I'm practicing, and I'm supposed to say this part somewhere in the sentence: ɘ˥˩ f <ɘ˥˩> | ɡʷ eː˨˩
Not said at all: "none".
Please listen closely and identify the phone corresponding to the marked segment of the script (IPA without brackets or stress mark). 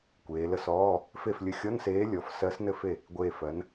e˥˩